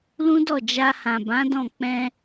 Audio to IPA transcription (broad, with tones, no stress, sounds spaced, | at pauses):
l ũ˦ d ɔ˦˨ d͡ʒ a˧ h ã˨ b ã˨˦ d ɔ̃˦˨ k͡p ɛ̃˧